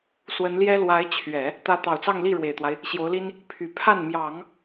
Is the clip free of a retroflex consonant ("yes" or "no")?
no